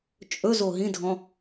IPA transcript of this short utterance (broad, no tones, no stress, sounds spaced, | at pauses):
t͡ʃʼ ɵ z o ɦ ĩ dʱ ɔ̃